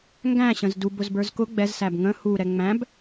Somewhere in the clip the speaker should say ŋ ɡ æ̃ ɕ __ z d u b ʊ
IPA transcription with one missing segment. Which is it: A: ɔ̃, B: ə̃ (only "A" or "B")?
B